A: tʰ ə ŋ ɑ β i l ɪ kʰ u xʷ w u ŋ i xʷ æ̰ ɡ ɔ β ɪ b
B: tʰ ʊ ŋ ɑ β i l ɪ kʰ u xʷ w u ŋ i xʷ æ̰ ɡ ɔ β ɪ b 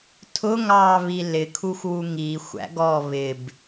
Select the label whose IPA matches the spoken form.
B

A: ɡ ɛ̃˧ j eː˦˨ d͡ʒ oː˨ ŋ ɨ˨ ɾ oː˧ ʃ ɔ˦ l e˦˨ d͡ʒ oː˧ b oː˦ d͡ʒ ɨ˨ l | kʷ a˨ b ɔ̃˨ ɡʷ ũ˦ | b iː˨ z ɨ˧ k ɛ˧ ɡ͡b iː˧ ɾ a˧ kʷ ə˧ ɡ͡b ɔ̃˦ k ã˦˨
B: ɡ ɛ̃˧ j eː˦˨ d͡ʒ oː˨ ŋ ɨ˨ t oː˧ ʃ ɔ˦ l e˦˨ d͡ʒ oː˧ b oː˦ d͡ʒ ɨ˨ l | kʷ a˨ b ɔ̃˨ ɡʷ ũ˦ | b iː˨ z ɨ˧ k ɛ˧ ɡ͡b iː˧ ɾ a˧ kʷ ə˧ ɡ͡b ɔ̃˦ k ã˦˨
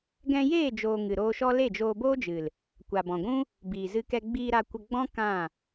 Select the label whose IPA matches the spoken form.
A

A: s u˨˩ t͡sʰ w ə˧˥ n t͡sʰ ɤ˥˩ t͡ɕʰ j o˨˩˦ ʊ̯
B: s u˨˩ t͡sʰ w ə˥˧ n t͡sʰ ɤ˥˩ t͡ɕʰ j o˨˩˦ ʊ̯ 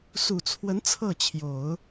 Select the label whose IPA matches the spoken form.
A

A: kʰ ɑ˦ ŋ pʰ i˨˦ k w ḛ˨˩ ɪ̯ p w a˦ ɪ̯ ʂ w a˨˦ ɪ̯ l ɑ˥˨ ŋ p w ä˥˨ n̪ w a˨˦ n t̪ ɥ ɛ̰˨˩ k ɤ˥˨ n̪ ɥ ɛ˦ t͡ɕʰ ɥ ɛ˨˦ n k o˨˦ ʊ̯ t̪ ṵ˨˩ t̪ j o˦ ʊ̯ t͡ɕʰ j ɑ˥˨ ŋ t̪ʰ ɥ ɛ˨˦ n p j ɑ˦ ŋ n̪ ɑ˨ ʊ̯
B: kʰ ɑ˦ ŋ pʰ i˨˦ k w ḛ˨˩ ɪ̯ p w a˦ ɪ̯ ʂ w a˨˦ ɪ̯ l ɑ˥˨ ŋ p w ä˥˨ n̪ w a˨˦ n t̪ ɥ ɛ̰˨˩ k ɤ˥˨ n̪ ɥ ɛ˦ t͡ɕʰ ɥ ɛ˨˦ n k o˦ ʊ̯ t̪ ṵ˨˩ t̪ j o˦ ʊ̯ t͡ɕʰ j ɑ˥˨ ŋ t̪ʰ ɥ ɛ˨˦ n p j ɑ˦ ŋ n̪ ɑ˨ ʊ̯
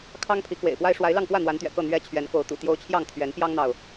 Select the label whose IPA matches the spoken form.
A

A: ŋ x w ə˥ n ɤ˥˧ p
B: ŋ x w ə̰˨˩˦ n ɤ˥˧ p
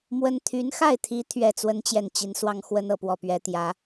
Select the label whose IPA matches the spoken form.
A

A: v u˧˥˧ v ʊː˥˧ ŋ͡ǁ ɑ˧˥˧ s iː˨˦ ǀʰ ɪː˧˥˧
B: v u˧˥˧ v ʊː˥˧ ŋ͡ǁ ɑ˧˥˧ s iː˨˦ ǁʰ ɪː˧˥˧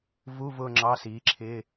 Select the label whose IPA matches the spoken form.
B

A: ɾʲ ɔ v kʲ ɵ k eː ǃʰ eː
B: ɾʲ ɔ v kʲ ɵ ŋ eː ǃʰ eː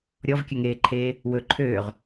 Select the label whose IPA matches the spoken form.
B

